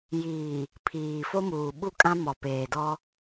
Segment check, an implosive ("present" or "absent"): present